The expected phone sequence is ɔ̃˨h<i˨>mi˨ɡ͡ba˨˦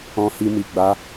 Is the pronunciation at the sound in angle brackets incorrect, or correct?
correct